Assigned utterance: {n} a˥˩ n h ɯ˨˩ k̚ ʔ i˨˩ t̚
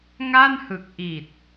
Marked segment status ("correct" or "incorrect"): incorrect